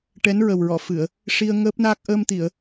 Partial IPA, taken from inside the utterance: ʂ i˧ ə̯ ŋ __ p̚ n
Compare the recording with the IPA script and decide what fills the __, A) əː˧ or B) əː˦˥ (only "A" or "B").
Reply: B